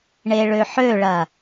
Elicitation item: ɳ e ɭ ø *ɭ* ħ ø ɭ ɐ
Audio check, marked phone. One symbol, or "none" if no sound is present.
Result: none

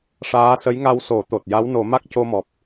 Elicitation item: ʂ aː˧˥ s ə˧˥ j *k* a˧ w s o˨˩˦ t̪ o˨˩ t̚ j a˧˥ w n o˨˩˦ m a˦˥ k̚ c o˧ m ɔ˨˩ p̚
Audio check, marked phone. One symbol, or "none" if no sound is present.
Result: ŋ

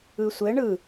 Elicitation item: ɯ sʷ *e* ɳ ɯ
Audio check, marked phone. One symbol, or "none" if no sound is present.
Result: ɘ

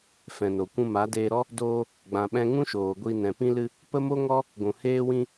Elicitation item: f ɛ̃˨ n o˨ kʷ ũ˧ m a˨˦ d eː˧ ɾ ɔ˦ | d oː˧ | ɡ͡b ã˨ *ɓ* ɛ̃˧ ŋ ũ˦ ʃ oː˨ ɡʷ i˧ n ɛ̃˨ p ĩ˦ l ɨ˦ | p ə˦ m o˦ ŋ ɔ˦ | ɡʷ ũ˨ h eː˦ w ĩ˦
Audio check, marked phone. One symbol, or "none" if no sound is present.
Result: ɓ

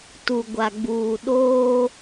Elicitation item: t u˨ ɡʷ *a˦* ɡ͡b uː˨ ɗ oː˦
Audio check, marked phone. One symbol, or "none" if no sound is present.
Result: a˨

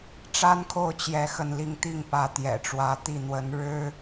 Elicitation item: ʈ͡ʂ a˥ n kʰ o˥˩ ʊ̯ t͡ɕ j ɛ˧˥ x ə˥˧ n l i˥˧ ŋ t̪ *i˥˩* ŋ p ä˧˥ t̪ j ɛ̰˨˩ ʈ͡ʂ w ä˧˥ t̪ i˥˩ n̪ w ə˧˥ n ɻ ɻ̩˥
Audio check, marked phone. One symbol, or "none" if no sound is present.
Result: i˥˩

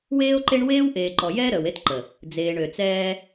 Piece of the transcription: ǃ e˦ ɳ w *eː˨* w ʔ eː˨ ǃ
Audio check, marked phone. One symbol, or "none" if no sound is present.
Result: eː˦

